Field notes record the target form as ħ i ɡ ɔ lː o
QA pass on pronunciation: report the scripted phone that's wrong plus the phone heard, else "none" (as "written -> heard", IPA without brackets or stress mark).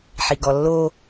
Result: none